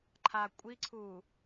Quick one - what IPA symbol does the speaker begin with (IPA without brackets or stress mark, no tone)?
ǃʰ